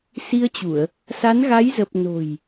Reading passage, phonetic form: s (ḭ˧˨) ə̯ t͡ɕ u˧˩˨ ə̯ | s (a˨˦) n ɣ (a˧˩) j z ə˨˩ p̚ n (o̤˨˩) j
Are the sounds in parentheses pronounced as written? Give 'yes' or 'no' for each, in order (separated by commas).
no, yes, no, yes